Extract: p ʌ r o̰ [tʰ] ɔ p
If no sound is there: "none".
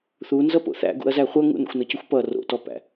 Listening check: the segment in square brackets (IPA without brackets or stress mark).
t